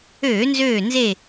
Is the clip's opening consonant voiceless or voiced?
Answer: voiced